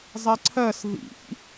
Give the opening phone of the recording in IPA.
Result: zˤ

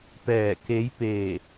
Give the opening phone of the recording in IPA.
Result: p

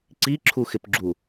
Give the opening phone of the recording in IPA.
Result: ǀ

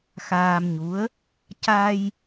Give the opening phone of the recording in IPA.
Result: x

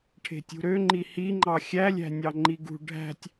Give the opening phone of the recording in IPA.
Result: ʈʰ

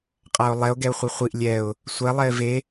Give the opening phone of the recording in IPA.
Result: qʼ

